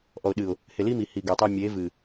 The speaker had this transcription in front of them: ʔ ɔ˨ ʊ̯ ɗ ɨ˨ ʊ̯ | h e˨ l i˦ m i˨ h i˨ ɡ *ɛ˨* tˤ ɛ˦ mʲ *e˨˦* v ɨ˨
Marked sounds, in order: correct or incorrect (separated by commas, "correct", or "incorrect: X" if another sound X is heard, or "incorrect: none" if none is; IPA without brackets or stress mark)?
correct, correct